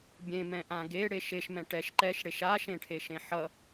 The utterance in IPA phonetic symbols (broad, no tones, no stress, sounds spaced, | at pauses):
bʲ ẽ m ɛ̃ ʔ ã ɡ e ɽ e ʃ e ʃ m ɛ̃ ʈ ɛ ʃ ǃ ɛ ʃ ɽ e ʃ a ʃ ẽ ʈʰ e ʃ ẽ ħ ʌ